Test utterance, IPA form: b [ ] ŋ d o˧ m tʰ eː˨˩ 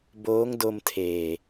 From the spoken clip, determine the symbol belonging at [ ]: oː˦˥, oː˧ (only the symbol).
oː˦˥